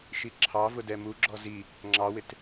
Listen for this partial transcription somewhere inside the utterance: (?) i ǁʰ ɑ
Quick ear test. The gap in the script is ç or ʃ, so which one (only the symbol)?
ʃ